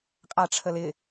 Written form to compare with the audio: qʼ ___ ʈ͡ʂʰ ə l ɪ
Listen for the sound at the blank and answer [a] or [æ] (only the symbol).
a